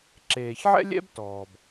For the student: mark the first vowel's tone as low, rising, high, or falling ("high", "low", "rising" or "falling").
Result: low